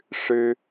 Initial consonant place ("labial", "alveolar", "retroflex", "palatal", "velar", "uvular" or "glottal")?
retroflex